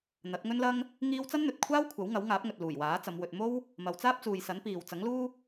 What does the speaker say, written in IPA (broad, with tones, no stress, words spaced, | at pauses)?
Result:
n̪ɐ˨˥t̚ŋɵ˥nlɐ˥ŋ | ŋiː˥w t͡sɐ˥nn̪ɵ˨t̚kʷʰaː˥w kʷʰɐ˨˥wŋɐ˨˥wŋaː˨˥p̚ŋɵ˨t̚ luː˨˩jwaː˨˥t͡sɐ˨˧m wɵ˨t̚mo˥w | mɐ˨˧wt͡saː˥p̚t͡suː˨jsɐ˨˥n piː˨w t͡sɐ˨˥ŋluː˥